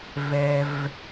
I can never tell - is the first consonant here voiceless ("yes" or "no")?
no